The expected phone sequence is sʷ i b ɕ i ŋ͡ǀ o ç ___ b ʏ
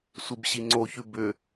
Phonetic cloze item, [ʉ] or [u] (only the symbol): ʉ